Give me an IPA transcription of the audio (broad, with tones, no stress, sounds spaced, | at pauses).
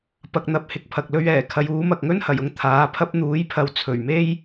p ɐ˨ k̚ n̪ ɐ˨ p̚ h ɪ˨ k̚ pʰ ɐ˨ k̚ l ɵ˧ ɥ ɛː˨˩ kʰ ɐ˨˥ j uː˨˥ m ɐ˨ k̚ ŋ ɵ˥ n h ɐ˨˩ j ʊ˥ ŋ t̪ʰ aː˨˥ pʰ ɐ˥ p̚ n̪ uː˨˥ j pʰ ɐ˨˧ w t͡sʰ ɵ˨˩ ɥ m e˥ j